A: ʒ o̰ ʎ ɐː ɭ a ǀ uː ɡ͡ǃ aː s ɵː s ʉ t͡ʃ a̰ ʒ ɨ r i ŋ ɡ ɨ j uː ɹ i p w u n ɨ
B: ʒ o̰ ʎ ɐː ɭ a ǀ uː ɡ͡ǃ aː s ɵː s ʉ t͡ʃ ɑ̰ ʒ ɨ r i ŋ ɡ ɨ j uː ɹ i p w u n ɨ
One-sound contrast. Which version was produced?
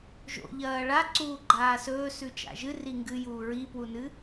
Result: A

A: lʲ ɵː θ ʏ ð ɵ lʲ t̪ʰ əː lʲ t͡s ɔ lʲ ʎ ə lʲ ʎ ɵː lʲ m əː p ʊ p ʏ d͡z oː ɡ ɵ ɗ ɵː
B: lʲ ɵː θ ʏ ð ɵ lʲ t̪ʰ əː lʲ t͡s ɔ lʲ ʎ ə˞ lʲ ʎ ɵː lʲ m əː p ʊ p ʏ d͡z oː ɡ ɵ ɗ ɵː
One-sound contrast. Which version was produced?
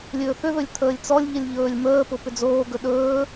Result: A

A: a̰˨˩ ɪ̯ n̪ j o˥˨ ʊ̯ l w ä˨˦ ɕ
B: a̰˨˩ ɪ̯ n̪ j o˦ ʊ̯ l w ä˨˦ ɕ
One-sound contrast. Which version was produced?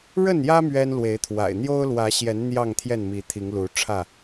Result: B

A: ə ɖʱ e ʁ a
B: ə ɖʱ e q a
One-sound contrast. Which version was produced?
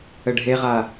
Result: A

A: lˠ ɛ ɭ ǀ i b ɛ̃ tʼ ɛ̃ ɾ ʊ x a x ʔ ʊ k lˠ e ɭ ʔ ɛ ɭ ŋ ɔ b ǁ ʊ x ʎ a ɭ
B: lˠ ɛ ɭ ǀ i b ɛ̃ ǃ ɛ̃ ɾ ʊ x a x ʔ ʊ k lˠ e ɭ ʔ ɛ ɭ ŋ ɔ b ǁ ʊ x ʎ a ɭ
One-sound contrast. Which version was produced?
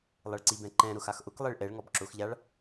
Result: B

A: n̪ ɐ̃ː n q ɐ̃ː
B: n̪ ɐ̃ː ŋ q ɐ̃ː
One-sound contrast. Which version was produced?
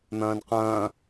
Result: A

